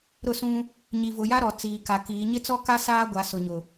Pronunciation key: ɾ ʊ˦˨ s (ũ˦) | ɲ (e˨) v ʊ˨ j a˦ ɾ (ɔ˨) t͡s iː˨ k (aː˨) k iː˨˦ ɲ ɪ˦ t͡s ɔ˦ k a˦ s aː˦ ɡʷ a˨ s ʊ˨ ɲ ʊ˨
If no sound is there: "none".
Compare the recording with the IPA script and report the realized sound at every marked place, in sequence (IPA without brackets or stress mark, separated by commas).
ũ˦, i˨, ɔ˨, a˨